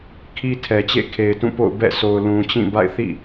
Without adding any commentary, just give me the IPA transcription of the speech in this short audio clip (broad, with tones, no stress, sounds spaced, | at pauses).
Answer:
kʰ i˦ tʰ ɛ˨ t͡ɕ ḛ˦˨ kʰ e˨ ɪ̯ t ũ˦˨ p o̰˦˨ ʊ̯ b ɛ̰˦˨ sʰ o˨ ʊ̯ l ũ˨ t͡ɕ ĩ˦˨ b a̰˦˨ ɪ̯ θ ḭ˦˨